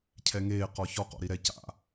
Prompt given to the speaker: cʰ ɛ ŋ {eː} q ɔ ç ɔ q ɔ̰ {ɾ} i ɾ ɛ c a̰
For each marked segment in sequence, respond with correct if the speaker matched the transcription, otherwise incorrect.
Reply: correct, correct

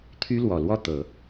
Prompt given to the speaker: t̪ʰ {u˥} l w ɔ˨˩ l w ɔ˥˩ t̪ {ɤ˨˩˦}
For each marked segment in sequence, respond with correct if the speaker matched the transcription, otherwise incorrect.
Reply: incorrect, correct

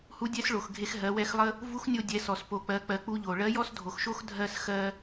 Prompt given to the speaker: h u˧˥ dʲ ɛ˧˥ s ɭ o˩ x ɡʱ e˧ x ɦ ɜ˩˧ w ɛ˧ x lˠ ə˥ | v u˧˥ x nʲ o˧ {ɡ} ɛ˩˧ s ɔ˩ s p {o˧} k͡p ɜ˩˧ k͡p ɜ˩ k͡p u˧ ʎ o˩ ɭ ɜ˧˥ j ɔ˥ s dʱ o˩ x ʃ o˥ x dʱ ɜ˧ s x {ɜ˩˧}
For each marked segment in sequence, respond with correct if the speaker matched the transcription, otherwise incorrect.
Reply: incorrect, incorrect, incorrect

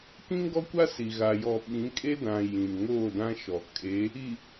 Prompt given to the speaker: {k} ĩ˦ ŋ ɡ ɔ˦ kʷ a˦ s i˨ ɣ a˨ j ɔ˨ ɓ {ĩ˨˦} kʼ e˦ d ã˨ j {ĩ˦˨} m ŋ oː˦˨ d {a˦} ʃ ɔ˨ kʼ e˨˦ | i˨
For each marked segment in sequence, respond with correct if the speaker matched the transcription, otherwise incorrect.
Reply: correct, correct, incorrect, incorrect

